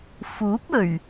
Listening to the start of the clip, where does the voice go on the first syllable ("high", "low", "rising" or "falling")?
rising